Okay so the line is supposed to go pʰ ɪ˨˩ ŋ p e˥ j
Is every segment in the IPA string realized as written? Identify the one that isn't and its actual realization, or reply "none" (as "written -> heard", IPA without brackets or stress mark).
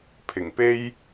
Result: none